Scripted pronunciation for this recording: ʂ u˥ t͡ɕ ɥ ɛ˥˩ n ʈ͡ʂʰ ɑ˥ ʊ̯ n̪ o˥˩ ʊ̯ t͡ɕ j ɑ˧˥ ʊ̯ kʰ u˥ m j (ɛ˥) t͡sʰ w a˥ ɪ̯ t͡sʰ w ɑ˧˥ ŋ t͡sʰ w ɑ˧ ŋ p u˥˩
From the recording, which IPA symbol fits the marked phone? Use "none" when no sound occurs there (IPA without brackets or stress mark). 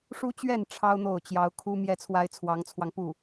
ɛ˥˩